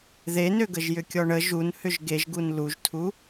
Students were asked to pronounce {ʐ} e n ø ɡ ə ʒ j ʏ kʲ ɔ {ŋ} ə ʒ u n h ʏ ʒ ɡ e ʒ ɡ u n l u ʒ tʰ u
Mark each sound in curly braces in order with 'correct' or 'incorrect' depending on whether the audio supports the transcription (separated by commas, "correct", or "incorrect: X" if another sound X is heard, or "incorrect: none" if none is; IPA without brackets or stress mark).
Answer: incorrect: ð, incorrect: ɳ